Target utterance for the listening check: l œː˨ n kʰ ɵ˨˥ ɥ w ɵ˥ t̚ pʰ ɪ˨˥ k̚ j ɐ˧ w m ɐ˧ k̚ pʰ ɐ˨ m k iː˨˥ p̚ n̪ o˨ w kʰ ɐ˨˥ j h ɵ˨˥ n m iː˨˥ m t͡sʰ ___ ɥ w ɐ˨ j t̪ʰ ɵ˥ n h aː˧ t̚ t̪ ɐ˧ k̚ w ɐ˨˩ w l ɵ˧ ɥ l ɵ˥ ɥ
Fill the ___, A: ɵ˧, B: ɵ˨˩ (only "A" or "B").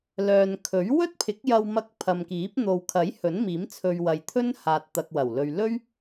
A